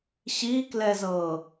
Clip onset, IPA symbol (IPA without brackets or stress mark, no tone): ɕ